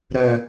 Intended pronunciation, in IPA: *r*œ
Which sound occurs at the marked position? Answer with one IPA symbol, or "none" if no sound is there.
ɾ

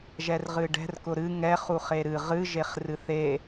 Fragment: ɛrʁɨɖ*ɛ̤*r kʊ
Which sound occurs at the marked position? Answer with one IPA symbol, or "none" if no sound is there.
ɛ̤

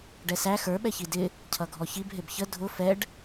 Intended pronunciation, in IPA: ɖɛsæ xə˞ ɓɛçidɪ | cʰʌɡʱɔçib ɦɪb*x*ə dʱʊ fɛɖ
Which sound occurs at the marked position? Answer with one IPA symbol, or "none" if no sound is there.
ç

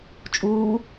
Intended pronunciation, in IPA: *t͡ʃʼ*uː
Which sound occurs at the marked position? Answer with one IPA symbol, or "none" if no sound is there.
t͡ʃʼ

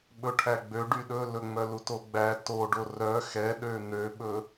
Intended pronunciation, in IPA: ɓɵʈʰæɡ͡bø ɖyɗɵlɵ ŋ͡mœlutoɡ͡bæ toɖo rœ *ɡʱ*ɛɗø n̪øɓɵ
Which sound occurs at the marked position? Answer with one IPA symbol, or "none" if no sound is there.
x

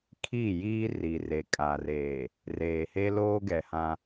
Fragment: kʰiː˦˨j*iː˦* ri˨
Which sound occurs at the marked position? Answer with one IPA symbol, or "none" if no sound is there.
iː˦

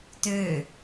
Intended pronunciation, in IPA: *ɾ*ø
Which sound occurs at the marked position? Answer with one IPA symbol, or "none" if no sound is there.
t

